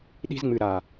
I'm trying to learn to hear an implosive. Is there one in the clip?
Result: yes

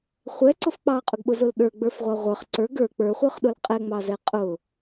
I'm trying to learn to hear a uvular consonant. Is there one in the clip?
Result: yes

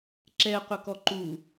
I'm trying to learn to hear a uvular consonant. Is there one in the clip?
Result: yes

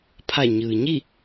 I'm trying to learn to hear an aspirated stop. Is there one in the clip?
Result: yes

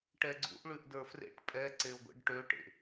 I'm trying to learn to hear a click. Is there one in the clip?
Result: yes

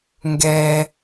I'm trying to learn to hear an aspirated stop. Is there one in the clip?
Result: no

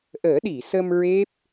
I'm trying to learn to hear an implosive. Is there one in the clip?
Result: yes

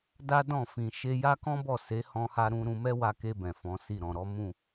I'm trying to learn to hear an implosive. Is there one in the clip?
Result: no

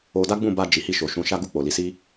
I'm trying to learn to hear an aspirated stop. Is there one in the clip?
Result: no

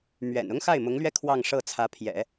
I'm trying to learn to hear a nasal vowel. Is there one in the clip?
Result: no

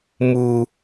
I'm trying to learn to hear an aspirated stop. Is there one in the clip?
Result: no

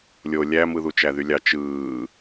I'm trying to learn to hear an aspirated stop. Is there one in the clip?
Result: no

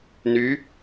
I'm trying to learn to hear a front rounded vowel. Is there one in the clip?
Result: yes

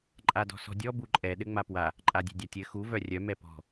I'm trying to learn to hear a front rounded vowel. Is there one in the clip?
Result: yes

